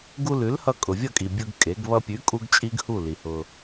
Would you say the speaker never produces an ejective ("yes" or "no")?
no